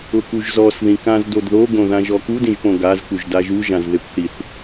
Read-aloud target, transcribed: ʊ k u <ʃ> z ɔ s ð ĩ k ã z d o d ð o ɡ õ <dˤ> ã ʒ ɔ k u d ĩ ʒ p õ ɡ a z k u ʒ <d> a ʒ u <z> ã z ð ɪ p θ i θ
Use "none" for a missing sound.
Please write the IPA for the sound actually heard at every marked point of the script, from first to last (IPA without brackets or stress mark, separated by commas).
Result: ʒ, ð, d, ʒ